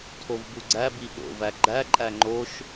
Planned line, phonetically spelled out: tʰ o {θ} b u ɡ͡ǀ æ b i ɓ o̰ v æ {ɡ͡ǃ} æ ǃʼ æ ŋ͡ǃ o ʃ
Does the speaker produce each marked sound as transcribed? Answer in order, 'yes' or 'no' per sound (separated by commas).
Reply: no, yes